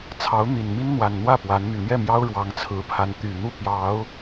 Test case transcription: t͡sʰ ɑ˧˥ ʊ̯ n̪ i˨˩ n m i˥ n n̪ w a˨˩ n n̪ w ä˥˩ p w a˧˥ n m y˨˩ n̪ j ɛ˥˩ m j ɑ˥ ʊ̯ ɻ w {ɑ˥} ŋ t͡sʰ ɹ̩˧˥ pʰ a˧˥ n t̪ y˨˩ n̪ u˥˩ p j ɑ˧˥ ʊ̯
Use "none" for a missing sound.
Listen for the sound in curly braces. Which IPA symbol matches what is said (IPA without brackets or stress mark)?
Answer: ɑ˧˥